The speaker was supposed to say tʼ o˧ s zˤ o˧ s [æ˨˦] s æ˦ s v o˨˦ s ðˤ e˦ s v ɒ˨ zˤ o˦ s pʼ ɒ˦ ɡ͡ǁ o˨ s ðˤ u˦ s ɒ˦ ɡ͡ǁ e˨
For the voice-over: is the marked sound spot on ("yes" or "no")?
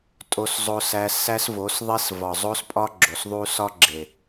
no